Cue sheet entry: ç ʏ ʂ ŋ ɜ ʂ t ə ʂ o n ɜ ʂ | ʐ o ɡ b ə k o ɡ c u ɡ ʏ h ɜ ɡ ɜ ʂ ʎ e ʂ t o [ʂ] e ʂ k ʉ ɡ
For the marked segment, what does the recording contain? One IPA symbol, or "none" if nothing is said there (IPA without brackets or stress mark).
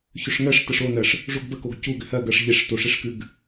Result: ʂ